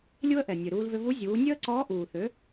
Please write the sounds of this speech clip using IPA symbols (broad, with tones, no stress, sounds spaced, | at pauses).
lʲ u˧ ə̯ ʔ ɛ˩ nʲ ø˩ ɾ uː˧ l v ʏ˧ v u˧˥ zʲ uː˩˧ nʲ ø˥ ə̯ ǀ ɔː˧˥ ʔ uː˩ θ ø˩˧